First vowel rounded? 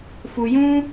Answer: yes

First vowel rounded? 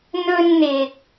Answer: yes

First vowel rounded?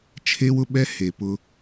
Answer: no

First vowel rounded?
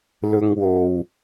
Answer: yes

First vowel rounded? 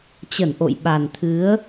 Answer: no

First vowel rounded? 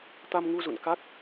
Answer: no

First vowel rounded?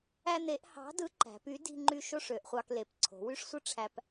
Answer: no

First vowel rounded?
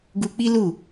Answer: yes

